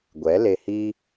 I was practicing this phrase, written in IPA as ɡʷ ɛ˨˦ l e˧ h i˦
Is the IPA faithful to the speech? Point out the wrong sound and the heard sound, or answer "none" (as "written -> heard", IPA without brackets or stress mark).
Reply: none